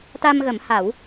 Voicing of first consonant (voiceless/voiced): voiceless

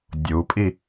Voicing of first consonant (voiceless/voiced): voiced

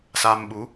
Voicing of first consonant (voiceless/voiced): voiceless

